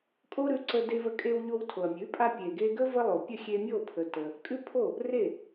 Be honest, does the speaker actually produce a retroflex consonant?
no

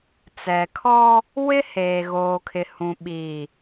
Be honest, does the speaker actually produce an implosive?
yes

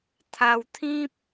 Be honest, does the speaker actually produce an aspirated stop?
yes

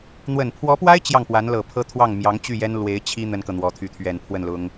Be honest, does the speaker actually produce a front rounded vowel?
yes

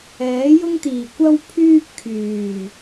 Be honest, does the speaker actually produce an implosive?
no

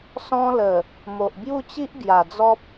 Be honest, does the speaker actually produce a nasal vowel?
yes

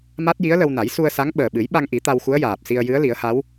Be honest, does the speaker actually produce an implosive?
yes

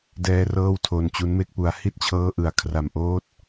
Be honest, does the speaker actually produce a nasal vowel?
no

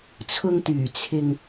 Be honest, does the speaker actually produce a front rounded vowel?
yes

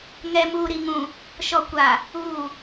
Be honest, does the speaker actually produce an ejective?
no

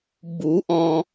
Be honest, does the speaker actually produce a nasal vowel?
yes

